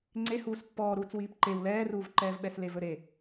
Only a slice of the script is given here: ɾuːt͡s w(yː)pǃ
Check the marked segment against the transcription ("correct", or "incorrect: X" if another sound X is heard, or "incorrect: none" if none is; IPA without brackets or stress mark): incorrect: iː